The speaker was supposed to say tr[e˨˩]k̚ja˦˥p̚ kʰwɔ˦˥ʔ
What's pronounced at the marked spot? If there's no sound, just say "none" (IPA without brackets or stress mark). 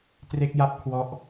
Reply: e˦˥